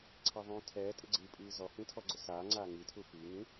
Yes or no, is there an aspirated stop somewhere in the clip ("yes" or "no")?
yes